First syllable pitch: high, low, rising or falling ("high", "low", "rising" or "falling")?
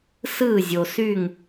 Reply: falling